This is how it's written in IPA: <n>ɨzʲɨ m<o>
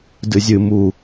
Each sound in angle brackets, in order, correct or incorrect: incorrect: d, incorrect: u

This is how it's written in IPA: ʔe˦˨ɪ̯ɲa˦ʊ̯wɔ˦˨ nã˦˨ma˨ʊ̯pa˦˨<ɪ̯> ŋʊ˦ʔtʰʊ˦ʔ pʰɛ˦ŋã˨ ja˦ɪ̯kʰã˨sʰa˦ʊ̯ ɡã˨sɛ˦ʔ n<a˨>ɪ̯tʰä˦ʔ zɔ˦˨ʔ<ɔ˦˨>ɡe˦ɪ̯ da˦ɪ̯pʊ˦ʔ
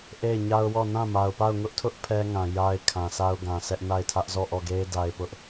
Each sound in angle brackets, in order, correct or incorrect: incorrect: ʊ̯, incorrect: a˦˨, correct

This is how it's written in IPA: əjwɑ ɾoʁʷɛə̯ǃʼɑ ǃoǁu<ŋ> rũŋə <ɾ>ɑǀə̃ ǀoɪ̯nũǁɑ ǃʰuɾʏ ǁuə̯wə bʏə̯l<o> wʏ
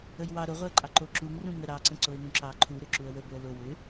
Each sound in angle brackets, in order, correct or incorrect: correct, correct, correct

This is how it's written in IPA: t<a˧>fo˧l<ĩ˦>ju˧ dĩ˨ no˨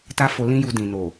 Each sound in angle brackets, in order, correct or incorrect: incorrect: a˦, correct

